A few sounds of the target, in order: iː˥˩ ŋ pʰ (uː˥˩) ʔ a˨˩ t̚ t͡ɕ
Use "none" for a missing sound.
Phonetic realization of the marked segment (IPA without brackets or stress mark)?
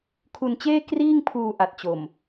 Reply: uː˧